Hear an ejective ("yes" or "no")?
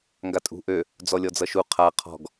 yes